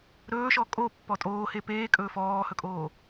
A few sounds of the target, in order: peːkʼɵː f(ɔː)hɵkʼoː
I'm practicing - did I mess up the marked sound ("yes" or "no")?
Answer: no